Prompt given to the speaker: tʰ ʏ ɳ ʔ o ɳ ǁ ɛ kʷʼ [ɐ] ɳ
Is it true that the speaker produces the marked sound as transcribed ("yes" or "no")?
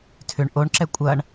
yes